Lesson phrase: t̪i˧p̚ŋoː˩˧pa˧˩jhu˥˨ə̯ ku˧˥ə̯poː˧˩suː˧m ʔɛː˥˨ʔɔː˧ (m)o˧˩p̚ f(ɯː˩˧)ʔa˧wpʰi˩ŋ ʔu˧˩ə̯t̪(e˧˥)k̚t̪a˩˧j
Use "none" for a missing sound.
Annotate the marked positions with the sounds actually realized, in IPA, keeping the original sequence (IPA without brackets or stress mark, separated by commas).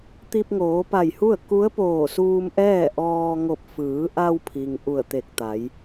ŋ, ɯː˩˧, e˧˩